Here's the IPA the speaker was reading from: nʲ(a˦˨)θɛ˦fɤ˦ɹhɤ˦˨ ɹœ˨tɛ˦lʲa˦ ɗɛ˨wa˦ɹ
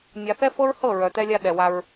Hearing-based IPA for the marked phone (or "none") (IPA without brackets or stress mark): a˨